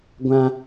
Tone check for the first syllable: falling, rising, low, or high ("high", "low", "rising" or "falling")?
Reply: high